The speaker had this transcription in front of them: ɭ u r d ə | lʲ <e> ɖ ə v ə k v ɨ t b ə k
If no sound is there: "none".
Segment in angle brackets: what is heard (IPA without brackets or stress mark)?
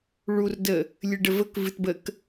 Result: ɨ